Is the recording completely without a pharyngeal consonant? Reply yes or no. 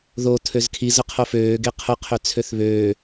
yes